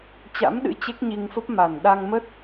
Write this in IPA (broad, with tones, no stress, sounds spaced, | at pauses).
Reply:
t͡ɕ a̰˧˥ m ɗ ɨ̰˧˥ t͡ɕ e˦˥ k̚ ɲ i˧ ŋ f ə˦˥ p̚ m a˨˩ n ɗ a˧ ŋ m ə˦˥ t̚